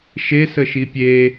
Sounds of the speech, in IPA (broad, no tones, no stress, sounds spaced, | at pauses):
ʃ e s ə ʃ i pʲ e